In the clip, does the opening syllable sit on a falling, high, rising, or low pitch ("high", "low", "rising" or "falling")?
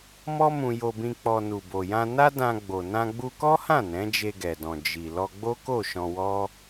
high